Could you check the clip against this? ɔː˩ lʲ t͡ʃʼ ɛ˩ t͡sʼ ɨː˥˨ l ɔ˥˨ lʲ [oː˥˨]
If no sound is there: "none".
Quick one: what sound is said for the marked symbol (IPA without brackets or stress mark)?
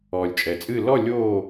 oː˥˨